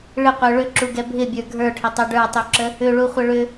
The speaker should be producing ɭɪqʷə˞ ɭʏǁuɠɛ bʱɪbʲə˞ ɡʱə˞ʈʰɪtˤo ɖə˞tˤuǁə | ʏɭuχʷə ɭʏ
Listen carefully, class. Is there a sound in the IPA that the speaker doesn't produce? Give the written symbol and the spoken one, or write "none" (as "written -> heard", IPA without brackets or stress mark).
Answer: ɠ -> ɡ